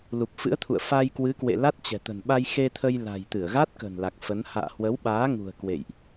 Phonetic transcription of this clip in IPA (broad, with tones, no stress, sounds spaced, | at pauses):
l u˨˩ p̚ f ɨ̰˧˥ ə̯ t̪ʰ ṵ˧˨ ə̯ f a˧ j k w ɨ˨˦ k w ḛ˧˨ l a˦˥ t̚ t͡ɕ ɛ̤˨˩ t̪ ə̤˨˩ n ɓ a˧ j x e˧ t̪ʰ ə˧ j l a̤˨˩ j t̪ ɨ˧˩ ə̯ ɣ a˦˥ t̚ k ə̤˨˩ n l a˨˩ k̚ f ə˨˦ n h a̰ː˧˨ h w ə˨˦ w ɓ aː˨˦ ŋ ṳ˨˩ ə̯ k w ḛ˧˨ j ʔ